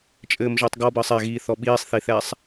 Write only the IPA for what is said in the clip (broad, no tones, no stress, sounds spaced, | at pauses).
t͡ʃʼ ɘː m ʒ əː tˤ ɡ ɔ b əː sˤ ɛ ɣ iː θ ɔ ɓ iː sˤ θ i θ ɛ sˤ